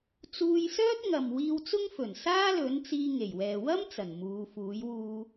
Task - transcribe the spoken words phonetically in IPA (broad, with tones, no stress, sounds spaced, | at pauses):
t͡s uː˧ j s œː˥ t̚ ŋ ɐ˨ m w iː˧ w t͡s ʊ˥ ŋ f ɵ˨˩ n s aː˥ l ɵ˨˥ n t͡s iː˧ ŋ e˨˩ j w ɛː˨ w ɐ˥ m t͡s ɐ˨˩ n m uː˨˧ f uː˨˥ j w uː˧